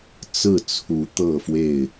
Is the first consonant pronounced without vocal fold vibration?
yes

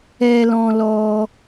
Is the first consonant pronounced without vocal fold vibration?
no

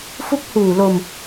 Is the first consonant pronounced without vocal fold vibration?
yes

